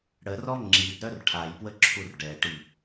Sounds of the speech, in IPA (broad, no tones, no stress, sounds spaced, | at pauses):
ɽ ə r ɔ ŋ͡ǁ i d ɾ œ r ʈʰ a j p w ə ǁʰ u r ɖ ɛ ʈ i